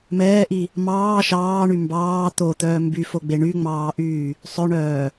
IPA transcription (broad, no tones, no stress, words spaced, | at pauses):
mɛːʔi | mɑː ʃɑːɳy mbɑː t̪ot̪œː mbyfoɡ͡be ɳyŋ͡mɑːʔyː | sˤœɳœː